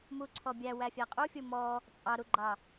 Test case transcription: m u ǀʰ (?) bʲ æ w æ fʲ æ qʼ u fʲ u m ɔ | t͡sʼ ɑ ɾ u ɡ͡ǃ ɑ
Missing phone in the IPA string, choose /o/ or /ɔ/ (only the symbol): ɔ